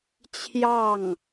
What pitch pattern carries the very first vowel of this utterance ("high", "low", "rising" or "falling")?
falling